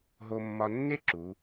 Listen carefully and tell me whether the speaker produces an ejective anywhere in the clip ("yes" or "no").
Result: no